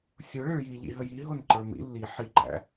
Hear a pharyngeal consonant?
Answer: yes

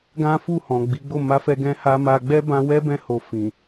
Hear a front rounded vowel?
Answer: no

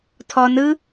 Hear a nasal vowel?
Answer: no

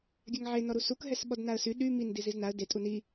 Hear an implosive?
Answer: yes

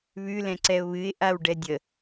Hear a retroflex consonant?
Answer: yes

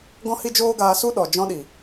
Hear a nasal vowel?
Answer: yes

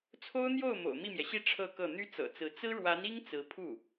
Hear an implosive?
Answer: no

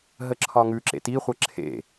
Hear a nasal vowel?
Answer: no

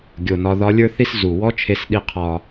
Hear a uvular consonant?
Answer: yes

